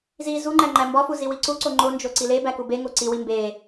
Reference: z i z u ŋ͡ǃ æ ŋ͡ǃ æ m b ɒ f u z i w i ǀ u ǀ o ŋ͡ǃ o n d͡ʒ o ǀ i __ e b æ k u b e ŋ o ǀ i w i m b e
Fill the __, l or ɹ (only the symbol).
l